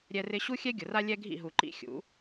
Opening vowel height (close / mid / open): mid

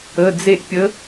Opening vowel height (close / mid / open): mid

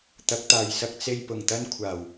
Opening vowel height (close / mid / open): open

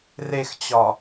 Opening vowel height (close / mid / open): mid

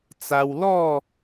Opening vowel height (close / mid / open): open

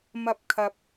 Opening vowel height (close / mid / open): open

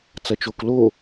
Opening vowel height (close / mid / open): open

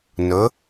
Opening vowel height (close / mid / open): mid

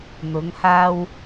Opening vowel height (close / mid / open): close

